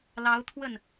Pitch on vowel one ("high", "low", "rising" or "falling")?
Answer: rising